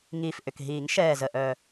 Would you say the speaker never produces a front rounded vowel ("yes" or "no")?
no